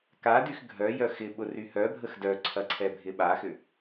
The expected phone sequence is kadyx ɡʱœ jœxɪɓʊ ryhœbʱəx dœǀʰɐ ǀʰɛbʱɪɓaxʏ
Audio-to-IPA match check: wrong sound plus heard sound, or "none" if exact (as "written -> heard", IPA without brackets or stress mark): none